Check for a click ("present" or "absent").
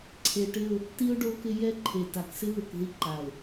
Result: present